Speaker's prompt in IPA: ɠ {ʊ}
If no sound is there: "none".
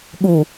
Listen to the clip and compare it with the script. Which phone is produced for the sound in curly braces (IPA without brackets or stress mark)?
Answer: u